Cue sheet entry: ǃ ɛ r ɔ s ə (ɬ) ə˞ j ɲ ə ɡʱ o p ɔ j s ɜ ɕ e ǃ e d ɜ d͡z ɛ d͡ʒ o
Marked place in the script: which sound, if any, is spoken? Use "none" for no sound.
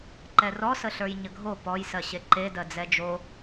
ɬ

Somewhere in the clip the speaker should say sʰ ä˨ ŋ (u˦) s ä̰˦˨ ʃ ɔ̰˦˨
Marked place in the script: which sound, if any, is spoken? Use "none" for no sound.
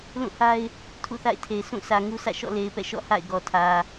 u˦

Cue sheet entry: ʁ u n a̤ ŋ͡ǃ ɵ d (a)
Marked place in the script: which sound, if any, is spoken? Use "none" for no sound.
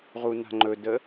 ə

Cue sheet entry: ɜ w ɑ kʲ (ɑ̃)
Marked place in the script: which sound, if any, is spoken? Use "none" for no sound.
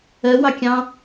ɑ̃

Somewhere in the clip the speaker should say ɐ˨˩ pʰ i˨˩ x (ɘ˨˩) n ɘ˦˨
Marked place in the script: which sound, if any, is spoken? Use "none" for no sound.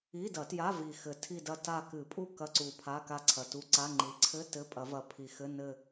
ɘ˧˥˧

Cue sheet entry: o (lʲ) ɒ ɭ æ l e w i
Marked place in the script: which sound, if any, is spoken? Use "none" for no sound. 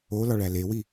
l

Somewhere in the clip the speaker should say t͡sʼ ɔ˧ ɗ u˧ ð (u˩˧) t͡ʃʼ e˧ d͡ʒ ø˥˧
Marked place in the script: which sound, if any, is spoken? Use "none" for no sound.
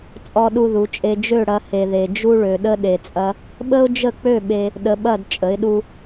u˩˧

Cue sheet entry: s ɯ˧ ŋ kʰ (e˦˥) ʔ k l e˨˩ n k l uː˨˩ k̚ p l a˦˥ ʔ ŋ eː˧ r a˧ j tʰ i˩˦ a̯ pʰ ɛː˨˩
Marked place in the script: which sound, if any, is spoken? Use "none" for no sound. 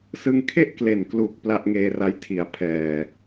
e˥˩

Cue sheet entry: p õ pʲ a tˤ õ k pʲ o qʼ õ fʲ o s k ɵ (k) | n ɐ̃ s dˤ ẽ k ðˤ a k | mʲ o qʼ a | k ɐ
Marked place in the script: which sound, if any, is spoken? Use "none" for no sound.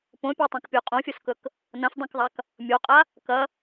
k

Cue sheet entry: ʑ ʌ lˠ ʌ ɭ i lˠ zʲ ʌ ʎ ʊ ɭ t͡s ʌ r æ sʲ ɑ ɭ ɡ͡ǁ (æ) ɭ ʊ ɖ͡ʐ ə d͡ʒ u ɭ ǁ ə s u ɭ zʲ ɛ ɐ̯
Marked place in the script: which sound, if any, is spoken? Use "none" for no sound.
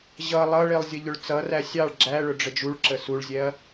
æ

